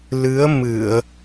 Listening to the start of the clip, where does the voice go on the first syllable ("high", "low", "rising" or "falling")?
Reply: rising